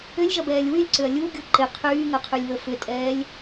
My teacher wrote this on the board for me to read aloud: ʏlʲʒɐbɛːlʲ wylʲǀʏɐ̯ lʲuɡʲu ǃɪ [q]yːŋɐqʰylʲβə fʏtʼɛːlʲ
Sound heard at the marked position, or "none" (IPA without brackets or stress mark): qʰ